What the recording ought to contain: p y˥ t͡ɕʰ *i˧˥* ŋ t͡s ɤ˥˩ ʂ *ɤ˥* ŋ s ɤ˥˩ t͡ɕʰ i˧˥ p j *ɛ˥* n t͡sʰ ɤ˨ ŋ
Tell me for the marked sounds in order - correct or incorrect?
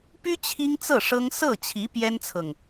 incorrect, correct, correct

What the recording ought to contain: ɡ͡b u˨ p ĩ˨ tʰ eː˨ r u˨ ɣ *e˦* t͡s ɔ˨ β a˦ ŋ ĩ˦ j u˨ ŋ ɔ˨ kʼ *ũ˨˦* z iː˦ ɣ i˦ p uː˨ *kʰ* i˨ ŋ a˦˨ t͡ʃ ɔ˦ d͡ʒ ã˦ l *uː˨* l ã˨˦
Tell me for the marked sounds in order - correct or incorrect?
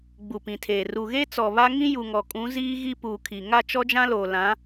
correct, correct, correct, incorrect

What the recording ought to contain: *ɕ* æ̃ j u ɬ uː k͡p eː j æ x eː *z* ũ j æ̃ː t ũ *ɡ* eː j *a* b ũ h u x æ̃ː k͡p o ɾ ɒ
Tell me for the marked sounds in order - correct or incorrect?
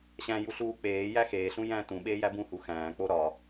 correct, incorrect, incorrect, incorrect

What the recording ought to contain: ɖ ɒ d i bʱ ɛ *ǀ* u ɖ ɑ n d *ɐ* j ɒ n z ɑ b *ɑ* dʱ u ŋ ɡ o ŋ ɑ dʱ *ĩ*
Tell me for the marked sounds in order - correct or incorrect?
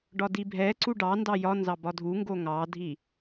correct, incorrect, incorrect, incorrect

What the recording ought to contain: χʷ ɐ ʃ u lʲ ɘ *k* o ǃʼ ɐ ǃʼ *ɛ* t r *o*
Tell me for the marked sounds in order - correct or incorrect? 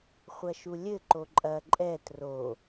incorrect, correct, correct

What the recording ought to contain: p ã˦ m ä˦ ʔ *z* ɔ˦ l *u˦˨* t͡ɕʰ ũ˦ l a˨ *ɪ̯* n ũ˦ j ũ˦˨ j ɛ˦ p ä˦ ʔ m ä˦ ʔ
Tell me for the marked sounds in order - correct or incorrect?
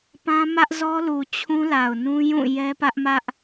correct, incorrect, incorrect

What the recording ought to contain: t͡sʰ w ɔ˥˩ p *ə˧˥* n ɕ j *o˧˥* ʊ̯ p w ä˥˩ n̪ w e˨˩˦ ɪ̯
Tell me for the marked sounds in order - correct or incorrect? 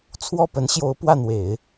correct, correct

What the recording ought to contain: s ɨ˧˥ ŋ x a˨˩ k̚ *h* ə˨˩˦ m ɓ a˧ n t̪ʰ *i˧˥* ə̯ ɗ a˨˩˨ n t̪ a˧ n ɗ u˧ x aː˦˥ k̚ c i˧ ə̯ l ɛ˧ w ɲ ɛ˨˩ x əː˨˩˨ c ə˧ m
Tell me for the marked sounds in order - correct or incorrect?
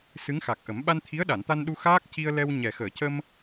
incorrect, correct

